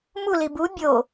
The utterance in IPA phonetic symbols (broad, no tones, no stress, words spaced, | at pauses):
muli bu bʲo